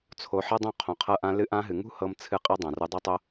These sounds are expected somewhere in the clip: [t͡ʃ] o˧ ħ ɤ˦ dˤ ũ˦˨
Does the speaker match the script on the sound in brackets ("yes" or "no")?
no